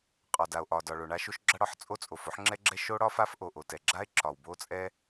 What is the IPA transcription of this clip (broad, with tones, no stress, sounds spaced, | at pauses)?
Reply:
qʼ ɒ˩ d a˩ o̯ ʔ ɒ˩ d ɒ˩ ɭ o˩ ɳ a˥ ʃ o˥ ʃ ɡ͡ǁ a˥ ɽ ɒ˥ ħ t͡sʼ o˥ t͡sʼ o˩ f o˥ ħ ŋ͡ǁ ɛ˥ ɡ͡ǁ ɛ˥ ʃ o˥ ɽ ɒ˥ f a˥ f ʔ o˩ ʔ o˩ t ɛ˩ ɡ͡ǁ a˥ e̯ ǁ ɒ˩ w b o˥ t͡sʼ ɛ˥